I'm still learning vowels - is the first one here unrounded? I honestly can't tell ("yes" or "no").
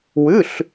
no